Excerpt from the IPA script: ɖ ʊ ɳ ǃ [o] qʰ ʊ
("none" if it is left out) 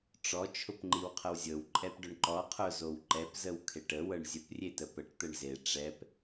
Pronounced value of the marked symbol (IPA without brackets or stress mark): ɔ